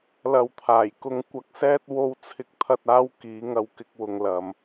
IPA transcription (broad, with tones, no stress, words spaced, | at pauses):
lɐ˨wt̪ʰaː˨˩j kʊ˧ŋ kʷɐ˧k̚sɛː˥t̚ wo˧wt͡sʰɪ˧k̚t̪ʰɐ˧t̚aː˧w kiː˨˧ŋɐ˧wkɪ˧k̚wʊ˨ŋ lɐ˨m